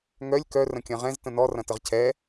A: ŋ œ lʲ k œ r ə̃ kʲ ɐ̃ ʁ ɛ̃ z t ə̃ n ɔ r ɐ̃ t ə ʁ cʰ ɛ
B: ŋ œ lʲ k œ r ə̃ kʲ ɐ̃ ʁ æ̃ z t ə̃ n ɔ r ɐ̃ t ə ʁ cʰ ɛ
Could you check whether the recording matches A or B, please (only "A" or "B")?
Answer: A